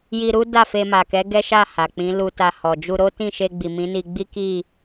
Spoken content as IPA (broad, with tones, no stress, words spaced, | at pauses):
ji˧ɾu˦ da˦˨fe˧ma˨kɛ˨˦ ɡɛ˦ʃa˦˨ ha˨k͡pĩ˨˦ lu˧ ta˧hɔ˨ d͡ʒu˧ ɾo˦tĩ˦˨ʃe˧ɡ͡bi˨ mĩ˨˦ni˧ɡ͡bi˦ ki˦˨